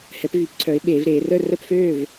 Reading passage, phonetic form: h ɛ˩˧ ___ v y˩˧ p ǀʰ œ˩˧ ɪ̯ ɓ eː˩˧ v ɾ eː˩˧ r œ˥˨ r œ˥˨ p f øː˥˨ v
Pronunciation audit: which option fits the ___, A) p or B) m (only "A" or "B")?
A